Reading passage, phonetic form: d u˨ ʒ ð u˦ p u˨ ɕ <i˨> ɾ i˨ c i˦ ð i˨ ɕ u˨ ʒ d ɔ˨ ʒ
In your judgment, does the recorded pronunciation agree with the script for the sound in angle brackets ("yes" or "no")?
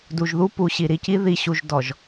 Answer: yes